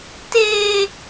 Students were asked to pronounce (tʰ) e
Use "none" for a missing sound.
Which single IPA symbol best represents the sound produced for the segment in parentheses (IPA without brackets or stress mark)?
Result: t